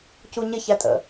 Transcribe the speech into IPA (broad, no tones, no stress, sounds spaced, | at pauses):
c u ɲ ɪ ç æ tʼ ə̰